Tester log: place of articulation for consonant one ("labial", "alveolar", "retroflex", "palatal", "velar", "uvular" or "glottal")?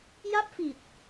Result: palatal